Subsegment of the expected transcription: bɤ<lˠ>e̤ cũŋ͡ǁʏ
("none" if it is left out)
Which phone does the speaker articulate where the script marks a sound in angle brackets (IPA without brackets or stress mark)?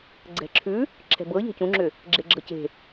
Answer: ʎ